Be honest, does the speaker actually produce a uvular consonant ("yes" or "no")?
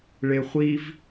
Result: yes